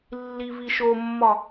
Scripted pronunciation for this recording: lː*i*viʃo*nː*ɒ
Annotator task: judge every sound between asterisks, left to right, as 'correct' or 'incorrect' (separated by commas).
correct, incorrect